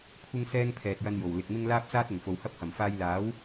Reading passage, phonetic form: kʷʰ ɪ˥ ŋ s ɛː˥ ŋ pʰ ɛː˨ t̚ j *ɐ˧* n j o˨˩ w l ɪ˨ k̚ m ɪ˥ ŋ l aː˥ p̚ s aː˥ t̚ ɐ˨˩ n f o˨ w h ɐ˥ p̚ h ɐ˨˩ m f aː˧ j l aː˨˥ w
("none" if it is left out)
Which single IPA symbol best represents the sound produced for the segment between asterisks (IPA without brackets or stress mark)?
ɐ˧